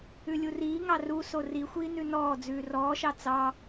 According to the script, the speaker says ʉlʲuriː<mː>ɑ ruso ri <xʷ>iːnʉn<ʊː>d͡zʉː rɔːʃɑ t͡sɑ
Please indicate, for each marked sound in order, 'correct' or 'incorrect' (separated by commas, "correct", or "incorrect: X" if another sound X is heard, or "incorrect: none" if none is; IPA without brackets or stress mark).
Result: incorrect: ŋ, correct, incorrect: ɔː